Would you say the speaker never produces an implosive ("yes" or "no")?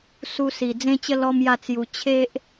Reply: yes